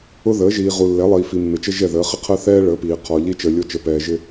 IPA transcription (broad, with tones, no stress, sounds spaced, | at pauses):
ʊ˦ ð əː˨˦ ʒ iː˨ ʁ u˨ lː ɛ˨˦ lˠ iː˨ f i˨ mː ɪ˨ t͡ʃ ə˦ ʒ ɛ˦˨ ð əː˨˦ χ ɪ˦ qʰ əː˦ θ ɛː˦ ɭ əː˨˦ p iː˨ qʰ ɔ˨ ʎ i˦ t͡ʃ əː˨ lʲ o˦ t͡ʃ əː˨ p ɛː˨ ʒ ɪ˦